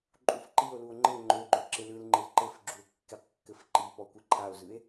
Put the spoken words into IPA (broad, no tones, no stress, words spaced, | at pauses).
ǃʼufǃio̯luo̯ ŋ͡ǃɘ ŋ͡ǃøɡ͡ǃø ǁɪlɯlŋ͡ǃɪl ǃɘfɡ͡ǁue̯ kːɪqkːɘf ǃipɔ kʷɯǃʰao̯zɯe̯